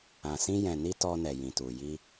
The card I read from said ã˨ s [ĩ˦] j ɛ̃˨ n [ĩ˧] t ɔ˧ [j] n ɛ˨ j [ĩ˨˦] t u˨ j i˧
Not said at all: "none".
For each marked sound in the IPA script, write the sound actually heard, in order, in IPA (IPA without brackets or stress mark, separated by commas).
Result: ĩ˧, i˧, none, ĩ˨